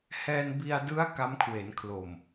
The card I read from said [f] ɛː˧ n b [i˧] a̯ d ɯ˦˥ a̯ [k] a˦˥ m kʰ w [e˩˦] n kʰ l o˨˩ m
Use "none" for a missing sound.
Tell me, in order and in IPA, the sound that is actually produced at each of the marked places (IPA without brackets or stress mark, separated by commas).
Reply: h, i˧, k, e˩˦